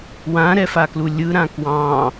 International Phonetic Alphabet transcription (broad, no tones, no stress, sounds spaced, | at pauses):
w ã ɾ ɛ f a k l u lʲ ɯ ɾ ã k w ɑ̃